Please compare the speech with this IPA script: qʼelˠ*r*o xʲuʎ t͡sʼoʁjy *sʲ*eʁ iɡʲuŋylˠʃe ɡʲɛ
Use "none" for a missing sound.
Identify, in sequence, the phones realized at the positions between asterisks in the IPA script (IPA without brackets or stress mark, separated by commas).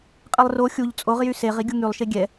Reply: r, s